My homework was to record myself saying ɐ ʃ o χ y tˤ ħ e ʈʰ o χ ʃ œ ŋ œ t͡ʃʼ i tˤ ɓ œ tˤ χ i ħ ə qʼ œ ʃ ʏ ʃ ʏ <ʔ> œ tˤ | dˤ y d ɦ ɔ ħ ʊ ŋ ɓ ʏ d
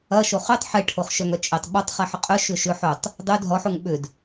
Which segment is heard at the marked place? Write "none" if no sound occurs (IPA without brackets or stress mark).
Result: ħ